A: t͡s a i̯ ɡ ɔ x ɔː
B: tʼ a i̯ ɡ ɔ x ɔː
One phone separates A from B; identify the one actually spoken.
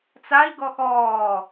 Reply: A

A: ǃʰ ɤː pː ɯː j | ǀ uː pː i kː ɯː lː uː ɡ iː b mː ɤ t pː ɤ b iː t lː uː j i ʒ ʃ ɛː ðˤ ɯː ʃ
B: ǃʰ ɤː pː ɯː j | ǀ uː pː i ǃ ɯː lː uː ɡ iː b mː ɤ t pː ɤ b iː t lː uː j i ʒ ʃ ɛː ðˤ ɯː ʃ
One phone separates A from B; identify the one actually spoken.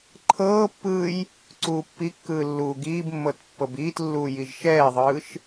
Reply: A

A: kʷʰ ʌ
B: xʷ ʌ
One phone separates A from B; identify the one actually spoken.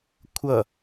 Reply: A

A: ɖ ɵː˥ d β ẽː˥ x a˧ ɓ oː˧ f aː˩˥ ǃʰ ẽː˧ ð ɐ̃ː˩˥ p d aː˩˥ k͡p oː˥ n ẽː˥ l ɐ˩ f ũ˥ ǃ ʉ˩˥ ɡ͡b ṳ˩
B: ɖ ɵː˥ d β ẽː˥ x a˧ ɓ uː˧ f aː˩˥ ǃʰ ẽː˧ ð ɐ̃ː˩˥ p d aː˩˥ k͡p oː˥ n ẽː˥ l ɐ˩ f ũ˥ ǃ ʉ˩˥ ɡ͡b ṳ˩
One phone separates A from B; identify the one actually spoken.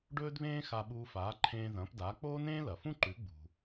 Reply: B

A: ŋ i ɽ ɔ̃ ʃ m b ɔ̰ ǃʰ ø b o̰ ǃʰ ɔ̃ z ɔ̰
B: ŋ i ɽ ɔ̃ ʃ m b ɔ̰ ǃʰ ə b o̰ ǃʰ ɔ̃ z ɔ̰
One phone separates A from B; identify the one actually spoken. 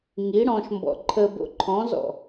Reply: B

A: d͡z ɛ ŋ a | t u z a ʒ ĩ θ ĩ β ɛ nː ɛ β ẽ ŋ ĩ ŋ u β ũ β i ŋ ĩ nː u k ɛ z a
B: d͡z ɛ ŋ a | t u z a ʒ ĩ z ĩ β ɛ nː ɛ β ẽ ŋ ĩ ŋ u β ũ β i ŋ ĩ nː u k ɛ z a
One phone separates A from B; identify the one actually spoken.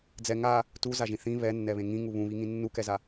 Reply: A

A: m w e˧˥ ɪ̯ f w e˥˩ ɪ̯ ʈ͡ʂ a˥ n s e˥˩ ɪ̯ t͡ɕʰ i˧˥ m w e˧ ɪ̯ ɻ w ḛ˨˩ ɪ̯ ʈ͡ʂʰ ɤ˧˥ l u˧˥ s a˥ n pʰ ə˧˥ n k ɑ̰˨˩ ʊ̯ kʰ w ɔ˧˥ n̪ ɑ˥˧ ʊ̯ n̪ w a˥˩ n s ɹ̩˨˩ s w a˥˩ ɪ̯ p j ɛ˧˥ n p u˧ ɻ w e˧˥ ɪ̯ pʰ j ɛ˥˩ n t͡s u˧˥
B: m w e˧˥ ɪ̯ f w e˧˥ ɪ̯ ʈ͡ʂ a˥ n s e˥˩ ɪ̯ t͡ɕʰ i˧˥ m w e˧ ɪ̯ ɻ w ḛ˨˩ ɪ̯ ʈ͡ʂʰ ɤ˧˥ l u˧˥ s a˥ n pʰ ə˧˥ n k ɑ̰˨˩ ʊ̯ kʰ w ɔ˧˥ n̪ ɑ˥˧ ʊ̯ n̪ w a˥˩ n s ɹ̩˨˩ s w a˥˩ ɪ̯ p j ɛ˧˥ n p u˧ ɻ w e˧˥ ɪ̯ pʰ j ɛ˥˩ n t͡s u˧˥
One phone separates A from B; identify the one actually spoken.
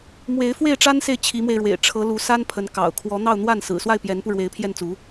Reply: A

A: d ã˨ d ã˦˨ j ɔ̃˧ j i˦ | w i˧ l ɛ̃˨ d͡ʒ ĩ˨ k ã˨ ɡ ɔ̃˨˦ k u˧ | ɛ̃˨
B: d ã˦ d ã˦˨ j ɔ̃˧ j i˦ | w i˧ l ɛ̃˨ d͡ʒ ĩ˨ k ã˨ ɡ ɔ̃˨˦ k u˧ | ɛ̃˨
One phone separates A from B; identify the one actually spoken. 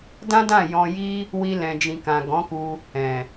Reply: B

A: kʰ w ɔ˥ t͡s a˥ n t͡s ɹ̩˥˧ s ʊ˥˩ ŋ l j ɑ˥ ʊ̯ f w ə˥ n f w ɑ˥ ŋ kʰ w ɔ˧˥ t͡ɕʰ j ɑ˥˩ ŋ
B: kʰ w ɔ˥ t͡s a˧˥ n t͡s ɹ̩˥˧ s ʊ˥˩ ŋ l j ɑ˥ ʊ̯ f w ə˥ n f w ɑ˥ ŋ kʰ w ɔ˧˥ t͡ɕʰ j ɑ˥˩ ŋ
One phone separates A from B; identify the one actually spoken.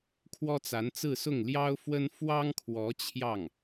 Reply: B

